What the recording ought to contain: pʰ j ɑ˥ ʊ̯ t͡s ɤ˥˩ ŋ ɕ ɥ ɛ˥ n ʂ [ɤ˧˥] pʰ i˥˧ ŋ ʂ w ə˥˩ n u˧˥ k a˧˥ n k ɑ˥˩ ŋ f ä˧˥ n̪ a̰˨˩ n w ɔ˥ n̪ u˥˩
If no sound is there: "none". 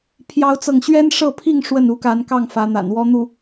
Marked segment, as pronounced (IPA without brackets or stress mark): ɤ˥˧